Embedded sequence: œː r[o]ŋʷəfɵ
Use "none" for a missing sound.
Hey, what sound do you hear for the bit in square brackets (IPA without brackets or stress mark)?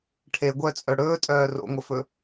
o̰